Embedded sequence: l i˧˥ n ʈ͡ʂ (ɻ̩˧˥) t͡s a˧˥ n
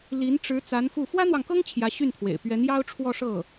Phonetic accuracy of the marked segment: correct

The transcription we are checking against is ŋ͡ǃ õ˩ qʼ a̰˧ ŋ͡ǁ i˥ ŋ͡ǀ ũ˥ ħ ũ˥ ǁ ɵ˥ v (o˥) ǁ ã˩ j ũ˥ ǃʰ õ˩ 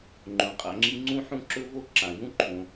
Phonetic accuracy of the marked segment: correct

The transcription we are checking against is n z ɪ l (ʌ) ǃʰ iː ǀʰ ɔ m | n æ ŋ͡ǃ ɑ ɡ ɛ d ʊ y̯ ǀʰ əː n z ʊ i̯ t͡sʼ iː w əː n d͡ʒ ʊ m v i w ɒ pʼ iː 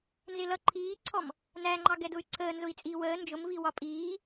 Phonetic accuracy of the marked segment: correct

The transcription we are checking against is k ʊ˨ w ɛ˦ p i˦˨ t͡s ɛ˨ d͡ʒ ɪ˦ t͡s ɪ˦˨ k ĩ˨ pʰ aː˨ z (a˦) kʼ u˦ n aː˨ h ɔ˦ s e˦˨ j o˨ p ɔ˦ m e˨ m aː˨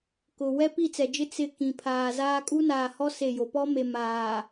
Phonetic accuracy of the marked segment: incorrect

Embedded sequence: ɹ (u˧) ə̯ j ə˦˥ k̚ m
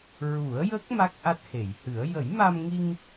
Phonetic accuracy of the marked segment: incorrect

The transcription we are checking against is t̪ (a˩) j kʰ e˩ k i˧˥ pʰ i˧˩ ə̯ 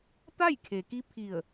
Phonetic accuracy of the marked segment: incorrect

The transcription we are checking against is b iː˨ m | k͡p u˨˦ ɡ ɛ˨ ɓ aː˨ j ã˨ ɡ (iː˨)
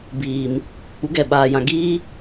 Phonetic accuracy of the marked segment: incorrect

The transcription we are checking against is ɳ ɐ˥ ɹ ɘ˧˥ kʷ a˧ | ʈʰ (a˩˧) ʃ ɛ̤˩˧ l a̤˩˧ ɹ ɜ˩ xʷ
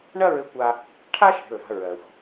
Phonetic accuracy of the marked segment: incorrect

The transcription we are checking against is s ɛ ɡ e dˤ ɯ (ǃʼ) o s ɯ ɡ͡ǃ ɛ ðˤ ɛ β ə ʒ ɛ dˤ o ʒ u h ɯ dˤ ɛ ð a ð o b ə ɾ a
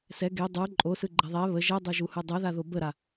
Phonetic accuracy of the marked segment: correct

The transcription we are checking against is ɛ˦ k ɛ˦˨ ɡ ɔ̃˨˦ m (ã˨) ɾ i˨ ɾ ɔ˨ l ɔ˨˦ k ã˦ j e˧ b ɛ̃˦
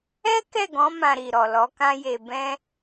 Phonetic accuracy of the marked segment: incorrect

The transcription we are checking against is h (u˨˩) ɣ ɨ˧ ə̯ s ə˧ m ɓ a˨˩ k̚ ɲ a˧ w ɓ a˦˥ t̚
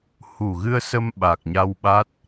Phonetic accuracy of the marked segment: correct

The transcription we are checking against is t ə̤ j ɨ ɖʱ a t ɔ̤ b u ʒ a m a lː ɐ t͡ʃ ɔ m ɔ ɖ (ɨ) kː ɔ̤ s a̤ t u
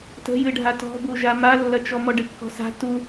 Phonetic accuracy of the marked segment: correct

